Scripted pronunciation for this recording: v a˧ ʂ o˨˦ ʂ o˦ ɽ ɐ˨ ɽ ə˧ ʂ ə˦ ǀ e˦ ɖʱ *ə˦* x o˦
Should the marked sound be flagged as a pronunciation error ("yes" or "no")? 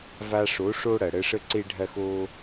yes